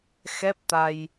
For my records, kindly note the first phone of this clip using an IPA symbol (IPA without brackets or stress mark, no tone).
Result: x